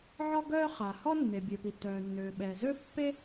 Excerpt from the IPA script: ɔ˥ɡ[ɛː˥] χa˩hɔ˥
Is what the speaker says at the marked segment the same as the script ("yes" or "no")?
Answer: no